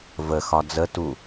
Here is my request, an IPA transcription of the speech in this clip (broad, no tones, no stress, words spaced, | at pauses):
vəxɒ d͡zətu